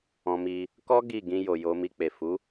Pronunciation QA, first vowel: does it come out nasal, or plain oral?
nasal